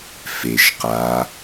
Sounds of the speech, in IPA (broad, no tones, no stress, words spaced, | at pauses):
feʃ qa